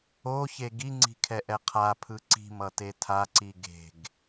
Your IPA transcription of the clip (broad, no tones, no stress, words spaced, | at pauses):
oçe ɡiŋ͡ǀi̤kʰɛʔɛ qʰapʰɯ ǀi̤mʌte tʰaǀi ɡe̤ɡ